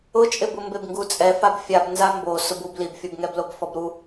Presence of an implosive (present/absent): absent